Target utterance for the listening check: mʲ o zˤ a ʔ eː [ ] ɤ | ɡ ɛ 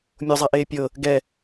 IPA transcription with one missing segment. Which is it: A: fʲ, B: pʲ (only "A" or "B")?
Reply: B